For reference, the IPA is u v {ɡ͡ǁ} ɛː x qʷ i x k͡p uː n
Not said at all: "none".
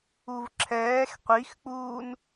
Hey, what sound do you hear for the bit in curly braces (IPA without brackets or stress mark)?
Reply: ǁʰ